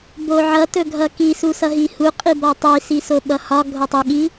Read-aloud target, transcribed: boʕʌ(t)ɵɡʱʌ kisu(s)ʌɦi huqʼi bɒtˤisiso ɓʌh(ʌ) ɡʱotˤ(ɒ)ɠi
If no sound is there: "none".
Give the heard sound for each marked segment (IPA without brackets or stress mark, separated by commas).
t, s, ɒ, ʌ